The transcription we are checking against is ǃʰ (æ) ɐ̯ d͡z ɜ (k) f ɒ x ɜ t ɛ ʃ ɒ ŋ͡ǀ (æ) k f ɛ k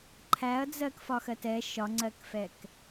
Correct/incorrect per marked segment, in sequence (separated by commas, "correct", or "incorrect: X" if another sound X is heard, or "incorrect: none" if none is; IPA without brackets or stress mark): correct, correct, incorrect: ɜ